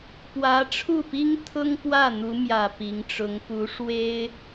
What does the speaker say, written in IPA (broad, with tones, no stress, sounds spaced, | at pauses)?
p w ä˧˥ ʈ͡ʂʰ u˥˩ p i˥ ŋ t̪ʰ ʊ˥ ŋ p w ä˥˩ n̪ u˧˥ m j ä˨˩ p i˧˥ ŋ ʈ͡ʂ ʊ˧˥ ŋ p u˧˥ ʂ w e˥ ɪ̯